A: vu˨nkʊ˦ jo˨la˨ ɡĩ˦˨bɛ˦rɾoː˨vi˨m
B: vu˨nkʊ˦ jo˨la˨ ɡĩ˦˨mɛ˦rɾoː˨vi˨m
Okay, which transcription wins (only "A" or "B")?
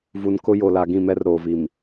B